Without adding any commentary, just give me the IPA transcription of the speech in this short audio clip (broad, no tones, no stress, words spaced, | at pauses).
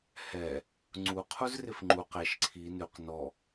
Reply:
hɛ | ŋ͡ǀu qʰuzrɪfŋ͡ǃu qeʃ ǀʰi nʉq nɔ